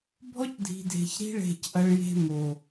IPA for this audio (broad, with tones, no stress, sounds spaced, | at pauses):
bʱ ɔ˦ c dʱ i̤˨ dʱ e̤˨ ç ɾ i̤˦ ɭ e̤˦˨ c ʔ ɐ˦ ɭ j e̤˦ m o˨